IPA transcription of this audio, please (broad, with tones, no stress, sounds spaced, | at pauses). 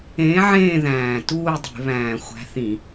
ẽː˨˥ ʕ ẽː˦˨ ð æ̃ː˨˩ t uː˦˨ dˤ e̤˧˩˧ β æ̃ː˨˩ xʷ æ̤˨˥ θ ĩ˧˩˧